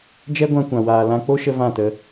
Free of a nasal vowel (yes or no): no